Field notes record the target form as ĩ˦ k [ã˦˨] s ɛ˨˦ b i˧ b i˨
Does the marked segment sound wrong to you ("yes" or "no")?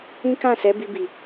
no